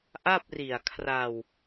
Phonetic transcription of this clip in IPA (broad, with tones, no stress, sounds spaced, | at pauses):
ʔ a˥˩ p̚ r i˨˩ a̯ kʰ r a˧ w